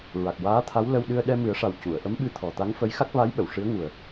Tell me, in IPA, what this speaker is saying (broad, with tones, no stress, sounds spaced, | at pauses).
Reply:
ɹ a˨˩ k̚ w aː˧˥ t̪ʰ a˧˥ w l ə˧ w ɗ ɨ˧ ə̯ ɗ ɛ˧ m ɨ˨˩˦ ə̯ ʂ a˨˩ w c u˨˩˨ ə̯ ʔ ə˧˥ m ɓ ɨ˧ t̪ʰ ɔ˨˩ t̪ a˧˥ ŋ f ə˧˥ j x a˦˥ k̚ v a˧˥ j ɓ ə˨˩˨ w ʂ ɨ˧˥ ə̯ ŋ u˨˩ ə̯